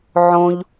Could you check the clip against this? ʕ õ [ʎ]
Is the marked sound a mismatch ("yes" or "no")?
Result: no